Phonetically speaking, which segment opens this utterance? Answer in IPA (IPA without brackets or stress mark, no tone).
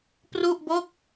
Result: p